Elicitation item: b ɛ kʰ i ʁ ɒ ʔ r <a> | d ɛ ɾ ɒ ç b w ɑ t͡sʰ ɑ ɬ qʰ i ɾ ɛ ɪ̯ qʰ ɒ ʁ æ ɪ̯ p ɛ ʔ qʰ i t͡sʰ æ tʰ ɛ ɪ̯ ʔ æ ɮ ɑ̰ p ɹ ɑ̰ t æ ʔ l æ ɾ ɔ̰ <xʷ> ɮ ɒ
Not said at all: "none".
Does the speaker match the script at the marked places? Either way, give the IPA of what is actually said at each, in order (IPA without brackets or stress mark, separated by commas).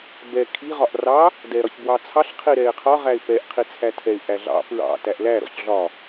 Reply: ɑ, ç